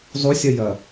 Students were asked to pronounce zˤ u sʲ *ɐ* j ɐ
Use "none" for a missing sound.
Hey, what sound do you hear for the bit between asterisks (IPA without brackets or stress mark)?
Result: ɐ